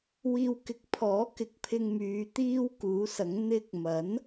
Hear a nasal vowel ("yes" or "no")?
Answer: no